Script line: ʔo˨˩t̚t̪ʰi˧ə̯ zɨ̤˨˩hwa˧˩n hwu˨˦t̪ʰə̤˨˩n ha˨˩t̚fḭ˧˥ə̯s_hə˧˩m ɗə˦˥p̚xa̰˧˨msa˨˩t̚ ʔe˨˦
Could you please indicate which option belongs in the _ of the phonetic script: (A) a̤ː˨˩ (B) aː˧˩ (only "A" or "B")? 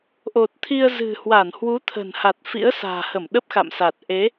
A